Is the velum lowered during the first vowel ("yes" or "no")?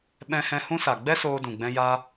yes